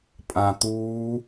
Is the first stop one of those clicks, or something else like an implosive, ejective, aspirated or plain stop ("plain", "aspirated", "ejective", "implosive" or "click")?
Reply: ejective